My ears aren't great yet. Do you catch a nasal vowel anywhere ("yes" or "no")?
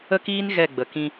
yes